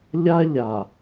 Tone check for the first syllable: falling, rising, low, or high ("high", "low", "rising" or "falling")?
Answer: high